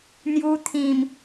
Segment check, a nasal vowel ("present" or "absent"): present